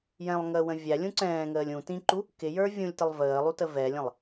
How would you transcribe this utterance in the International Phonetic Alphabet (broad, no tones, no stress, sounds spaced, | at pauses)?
j ɛ̃ lˠ ŋ əː w ə̃ vʲ æ lʲ ũ ǀ ɛ̃ː ŋ əː lʲ ũ t ĩ ǃ u | k ɪ j ə˞ vʲ ũ lʲ t ə lˠ v əː lˠ u t ə v ɛ lʲ ə̃ lˠ